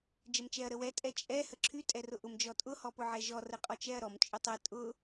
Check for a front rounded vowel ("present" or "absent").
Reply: present